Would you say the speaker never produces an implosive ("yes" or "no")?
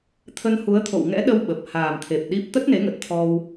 no